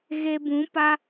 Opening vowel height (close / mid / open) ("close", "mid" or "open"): mid